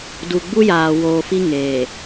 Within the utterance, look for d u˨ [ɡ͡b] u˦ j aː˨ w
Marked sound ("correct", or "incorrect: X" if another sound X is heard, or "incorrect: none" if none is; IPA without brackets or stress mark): correct